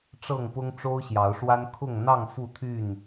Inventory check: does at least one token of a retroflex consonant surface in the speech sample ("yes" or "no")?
yes